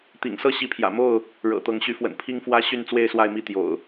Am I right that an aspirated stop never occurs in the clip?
no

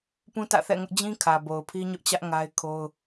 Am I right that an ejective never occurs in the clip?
yes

